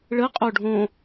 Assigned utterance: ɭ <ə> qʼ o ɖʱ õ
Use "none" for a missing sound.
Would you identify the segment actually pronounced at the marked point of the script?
ə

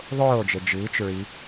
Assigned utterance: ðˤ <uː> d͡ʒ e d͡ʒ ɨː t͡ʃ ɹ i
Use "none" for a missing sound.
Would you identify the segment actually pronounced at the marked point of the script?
oː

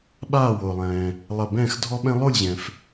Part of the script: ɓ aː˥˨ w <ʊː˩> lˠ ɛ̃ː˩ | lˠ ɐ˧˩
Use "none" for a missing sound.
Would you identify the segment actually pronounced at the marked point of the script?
ʊː˩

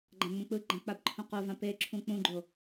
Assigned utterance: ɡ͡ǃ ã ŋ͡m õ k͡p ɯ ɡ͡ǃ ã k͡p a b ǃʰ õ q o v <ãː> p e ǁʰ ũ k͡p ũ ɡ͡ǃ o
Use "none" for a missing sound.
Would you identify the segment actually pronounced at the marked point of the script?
ã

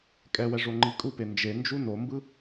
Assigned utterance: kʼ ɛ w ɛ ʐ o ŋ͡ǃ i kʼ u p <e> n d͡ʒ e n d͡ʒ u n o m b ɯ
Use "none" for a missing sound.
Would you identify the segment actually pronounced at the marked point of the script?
e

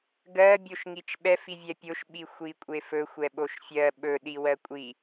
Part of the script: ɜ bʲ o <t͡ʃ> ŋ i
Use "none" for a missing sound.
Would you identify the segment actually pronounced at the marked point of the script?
ʃ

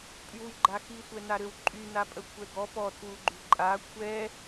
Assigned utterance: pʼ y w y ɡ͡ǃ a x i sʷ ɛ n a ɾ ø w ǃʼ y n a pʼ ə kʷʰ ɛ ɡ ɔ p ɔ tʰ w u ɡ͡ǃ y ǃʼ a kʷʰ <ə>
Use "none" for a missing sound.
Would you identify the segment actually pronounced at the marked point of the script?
ɛ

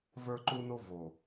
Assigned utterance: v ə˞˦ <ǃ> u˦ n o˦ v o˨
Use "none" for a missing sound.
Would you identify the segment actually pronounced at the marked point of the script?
ǃ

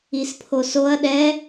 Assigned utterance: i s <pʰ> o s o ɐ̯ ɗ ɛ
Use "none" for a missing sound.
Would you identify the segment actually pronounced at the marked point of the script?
pʰ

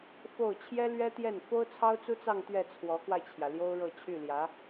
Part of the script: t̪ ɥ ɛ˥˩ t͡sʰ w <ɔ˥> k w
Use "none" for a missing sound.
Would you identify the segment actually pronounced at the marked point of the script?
ɔ˧˥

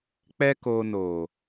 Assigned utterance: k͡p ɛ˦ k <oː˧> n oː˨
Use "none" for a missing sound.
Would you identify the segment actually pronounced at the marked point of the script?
oː˧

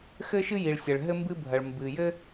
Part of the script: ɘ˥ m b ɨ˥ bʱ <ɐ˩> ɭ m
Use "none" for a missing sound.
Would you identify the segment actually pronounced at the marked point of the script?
ɐ˩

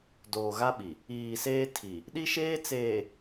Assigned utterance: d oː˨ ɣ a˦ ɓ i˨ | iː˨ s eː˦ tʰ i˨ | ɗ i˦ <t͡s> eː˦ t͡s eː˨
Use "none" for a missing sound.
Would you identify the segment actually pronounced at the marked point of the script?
ʃ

